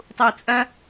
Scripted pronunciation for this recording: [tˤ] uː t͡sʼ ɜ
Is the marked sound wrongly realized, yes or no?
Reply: no